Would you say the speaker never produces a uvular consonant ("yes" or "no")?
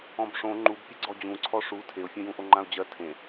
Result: yes